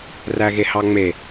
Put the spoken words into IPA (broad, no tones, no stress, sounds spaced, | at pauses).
r æ ɣ e h ɑ ŋ͡m e